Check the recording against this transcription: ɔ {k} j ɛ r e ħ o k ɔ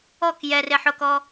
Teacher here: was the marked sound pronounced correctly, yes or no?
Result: yes